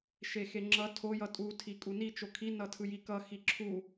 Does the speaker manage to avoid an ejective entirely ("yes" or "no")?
no